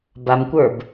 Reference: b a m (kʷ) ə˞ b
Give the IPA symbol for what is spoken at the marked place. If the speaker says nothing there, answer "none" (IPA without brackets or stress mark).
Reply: kʷ